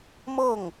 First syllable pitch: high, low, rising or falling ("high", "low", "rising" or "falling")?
falling